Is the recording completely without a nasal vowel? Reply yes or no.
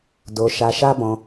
no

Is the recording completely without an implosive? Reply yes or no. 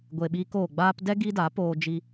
no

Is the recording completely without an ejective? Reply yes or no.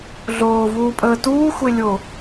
no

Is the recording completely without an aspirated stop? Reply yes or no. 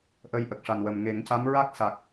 yes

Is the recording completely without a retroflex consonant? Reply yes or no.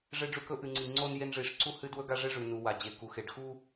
no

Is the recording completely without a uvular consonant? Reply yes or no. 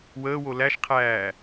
no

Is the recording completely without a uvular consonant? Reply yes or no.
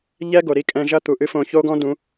yes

